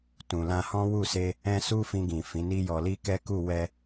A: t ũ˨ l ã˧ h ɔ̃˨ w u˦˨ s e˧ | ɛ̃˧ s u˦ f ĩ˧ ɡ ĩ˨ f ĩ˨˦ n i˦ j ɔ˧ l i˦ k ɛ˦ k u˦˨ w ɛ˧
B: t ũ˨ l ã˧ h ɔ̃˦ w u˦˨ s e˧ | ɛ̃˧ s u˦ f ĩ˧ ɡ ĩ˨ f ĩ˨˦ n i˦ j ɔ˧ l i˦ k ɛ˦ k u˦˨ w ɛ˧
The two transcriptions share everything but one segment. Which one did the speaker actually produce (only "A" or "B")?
B